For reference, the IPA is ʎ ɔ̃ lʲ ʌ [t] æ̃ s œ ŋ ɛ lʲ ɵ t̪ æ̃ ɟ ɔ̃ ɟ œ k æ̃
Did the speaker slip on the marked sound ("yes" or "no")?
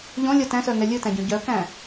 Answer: no